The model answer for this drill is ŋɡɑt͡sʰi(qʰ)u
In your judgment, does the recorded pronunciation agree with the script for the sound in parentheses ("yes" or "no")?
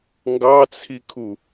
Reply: no